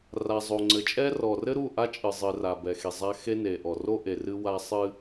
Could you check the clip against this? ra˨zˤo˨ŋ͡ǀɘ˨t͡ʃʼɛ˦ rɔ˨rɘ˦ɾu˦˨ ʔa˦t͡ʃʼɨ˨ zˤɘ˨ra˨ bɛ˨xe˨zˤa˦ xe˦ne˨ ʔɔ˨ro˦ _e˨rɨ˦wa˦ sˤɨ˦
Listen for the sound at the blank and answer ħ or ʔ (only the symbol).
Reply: ʔ